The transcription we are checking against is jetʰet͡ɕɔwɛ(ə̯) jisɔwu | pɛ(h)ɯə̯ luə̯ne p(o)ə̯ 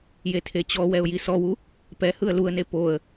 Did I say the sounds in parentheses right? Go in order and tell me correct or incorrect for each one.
incorrect: ʊ̯, correct, correct

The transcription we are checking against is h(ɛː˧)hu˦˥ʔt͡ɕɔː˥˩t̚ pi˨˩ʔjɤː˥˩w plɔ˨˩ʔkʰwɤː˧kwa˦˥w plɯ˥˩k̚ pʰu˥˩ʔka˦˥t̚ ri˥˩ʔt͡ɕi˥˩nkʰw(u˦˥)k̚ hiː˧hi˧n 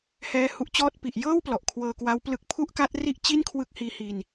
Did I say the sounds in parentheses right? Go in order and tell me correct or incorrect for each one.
incorrect: ɛː˦˥, incorrect: ɯ˦˥

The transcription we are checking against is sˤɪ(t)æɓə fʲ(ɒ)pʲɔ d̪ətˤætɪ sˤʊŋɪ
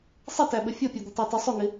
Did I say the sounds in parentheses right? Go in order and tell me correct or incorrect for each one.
correct, correct

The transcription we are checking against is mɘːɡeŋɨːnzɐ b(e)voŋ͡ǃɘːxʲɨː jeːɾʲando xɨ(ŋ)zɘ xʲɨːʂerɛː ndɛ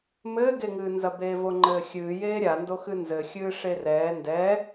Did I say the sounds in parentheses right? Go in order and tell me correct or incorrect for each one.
incorrect: eː, incorrect: n

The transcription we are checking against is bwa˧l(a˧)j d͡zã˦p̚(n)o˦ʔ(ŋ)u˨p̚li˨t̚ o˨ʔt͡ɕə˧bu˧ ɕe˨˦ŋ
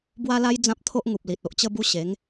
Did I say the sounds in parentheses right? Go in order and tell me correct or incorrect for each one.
correct, incorrect: t̪ʰ, correct

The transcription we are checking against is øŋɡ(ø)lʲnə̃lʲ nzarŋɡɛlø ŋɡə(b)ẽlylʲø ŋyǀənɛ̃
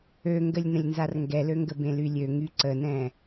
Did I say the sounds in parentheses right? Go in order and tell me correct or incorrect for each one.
incorrect: ə, correct

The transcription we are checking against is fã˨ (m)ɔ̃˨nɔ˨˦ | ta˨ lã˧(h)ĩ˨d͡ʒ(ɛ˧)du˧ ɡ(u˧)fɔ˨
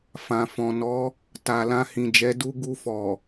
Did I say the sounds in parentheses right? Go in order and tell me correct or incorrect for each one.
incorrect: f, correct, incorrect: ɛ˨˦, correct

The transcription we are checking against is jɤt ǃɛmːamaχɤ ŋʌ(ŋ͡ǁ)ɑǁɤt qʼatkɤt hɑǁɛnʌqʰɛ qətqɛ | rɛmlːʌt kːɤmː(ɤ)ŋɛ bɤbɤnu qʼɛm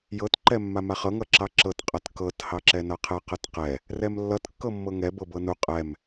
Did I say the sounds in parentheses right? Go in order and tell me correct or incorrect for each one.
incorrect: ǁ, correct

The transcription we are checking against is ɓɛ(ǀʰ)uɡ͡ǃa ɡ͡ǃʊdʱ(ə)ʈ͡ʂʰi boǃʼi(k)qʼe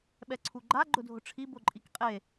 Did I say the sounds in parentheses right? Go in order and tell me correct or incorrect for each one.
correct, incorrect: ʊ, correct

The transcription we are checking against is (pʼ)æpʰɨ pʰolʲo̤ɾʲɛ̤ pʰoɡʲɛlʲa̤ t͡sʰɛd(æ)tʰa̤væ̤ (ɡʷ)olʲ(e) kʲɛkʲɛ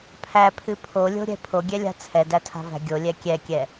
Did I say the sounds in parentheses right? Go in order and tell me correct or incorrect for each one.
incorrect: pʰ, correct, incorrect: ɡʲ, incorrect: ɛ

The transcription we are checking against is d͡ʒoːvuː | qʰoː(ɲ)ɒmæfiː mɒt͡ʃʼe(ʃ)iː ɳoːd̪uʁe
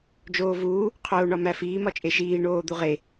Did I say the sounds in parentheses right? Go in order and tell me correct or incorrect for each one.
incorrect: ɳ, correct

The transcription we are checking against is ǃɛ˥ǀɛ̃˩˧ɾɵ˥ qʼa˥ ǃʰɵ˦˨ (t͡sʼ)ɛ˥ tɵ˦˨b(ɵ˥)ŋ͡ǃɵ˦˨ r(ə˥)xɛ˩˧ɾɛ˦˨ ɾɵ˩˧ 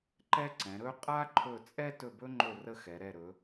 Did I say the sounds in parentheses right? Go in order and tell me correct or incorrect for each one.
correct, correct, correct

